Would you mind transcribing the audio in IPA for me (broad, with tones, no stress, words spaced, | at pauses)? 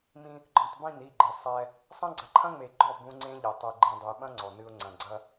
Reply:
mĩ˦ | ɡ͡ǃɔ̃˨tˤbĩ˦˨n i˦˨ɡ͡ǃɘ˨ sˤɛ˦ | sˤɐ̃˦ɡ͡ǀɐ˨˦ǃʰɐ̃˦ŋ͡me˨ ɡ͡ǃɔ˦˨ bũ˦ ŋ͡ǀẽ˦ʎe˨ tˤɨ˨ɡ͡ǃĩ˨dˤɘ˨j ɓɐ̃˦ ŋ͡ǀɔ˨nɨ˦ʊ̯ ŋ͡ǀɐ̃˨ɡ͡ǀɐ˦